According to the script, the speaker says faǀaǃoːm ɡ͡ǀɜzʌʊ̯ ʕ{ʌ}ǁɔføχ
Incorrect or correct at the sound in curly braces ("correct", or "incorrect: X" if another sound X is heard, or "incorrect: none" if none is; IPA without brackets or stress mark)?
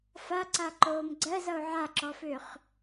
incorrect: a